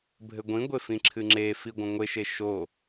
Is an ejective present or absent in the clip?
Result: absent